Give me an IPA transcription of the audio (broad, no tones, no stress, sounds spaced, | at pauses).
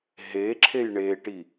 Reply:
ɦ e ǁʰ e j ɳ e ʈ i